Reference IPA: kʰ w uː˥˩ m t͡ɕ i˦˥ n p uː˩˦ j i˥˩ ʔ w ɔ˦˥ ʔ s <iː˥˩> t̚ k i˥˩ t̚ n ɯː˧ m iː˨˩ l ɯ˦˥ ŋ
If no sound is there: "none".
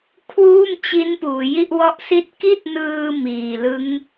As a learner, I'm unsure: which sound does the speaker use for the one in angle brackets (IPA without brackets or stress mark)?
i˥˩